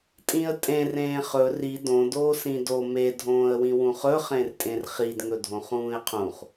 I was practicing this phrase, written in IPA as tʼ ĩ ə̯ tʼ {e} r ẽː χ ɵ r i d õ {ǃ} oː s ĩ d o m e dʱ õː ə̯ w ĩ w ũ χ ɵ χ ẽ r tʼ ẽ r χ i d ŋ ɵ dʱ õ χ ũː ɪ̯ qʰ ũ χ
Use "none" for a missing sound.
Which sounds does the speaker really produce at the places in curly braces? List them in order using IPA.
ẽ, d

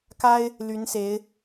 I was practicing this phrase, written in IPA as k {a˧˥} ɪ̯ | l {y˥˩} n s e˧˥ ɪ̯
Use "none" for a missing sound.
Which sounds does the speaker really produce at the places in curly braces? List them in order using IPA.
a˥, y˧˥

